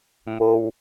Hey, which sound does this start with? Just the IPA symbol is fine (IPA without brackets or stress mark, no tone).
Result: m